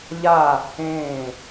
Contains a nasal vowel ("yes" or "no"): yes